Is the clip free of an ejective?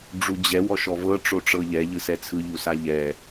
yes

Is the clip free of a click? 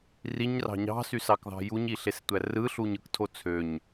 yes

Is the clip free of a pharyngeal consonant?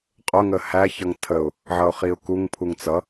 no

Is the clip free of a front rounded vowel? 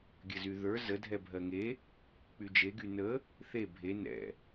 no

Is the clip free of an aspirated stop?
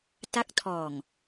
no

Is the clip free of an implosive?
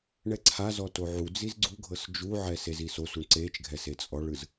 yes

